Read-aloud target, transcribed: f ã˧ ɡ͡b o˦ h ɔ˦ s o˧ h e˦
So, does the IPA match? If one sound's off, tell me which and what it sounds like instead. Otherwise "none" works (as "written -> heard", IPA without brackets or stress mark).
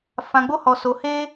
ɔ˦ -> ɔ˧